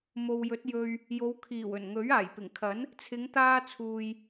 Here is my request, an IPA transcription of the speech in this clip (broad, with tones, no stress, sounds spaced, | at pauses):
m o˨ w j ɵ˨˥ t̚ j ɵ˧ ɥ | j o˨˧ w kʰ iː˨˩ w ɵ˨˩ n ŋ ɵ˨˥ ɥ aː˨˩ j p ɪ˨˩ ŋ kʰ ɐ˨˥ n | t͡sʰ ɪ˨˧ ŋ t̪ aː˧ t͡sʰ uː˨ j